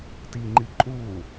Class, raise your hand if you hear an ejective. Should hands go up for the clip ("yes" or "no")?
yes